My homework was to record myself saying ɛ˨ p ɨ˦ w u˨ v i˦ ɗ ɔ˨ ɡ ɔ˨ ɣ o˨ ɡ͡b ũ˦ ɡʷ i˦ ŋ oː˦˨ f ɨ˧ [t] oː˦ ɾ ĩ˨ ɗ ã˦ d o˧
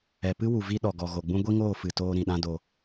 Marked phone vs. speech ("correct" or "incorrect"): correct